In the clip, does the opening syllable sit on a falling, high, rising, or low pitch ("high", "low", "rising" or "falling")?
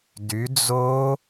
rising